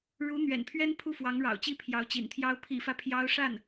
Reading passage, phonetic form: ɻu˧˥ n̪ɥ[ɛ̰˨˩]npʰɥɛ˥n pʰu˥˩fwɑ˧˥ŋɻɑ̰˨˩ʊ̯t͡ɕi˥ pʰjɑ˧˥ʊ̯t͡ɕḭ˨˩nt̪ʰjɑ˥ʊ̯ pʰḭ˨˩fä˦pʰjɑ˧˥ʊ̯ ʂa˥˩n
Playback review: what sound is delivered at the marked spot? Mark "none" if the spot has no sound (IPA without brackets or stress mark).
ɛ̰˨˩